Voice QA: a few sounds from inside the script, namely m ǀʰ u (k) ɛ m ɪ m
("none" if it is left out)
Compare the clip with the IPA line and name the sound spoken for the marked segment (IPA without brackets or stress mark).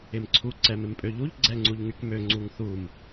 ǀ